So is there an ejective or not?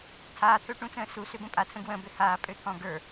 yes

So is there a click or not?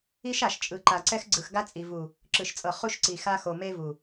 yes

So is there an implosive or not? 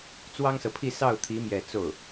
no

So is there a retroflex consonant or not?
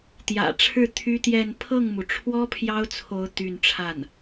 yes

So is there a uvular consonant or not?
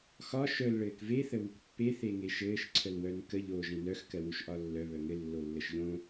no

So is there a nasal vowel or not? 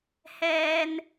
no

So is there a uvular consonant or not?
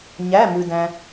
no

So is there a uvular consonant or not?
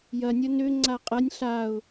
yes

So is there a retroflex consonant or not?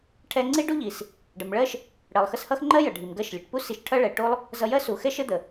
yes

